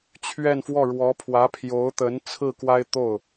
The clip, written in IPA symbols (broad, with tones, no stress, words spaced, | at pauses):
t͡ɕʰɥɛ˥˧nfwɔ˥˩ ɻwɔ˧˥pʰwä˧˥pʰjo˧˥ʊ̯t̪ə˧˥n t͡sʰɹ̩˥˩kwa˥ɪ̯t̪o˥˩ʊ̯